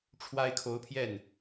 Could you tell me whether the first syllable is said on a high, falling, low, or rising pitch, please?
high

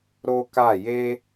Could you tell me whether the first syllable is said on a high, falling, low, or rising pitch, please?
high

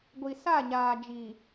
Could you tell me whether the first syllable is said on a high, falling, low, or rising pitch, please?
low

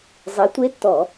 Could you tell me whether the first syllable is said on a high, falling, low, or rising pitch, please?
rising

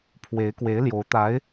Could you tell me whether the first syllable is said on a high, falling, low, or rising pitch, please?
rising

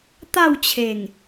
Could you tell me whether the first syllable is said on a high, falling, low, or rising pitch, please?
falling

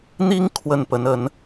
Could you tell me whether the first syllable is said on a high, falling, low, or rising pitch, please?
high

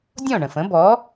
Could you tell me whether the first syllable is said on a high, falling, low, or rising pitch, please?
falling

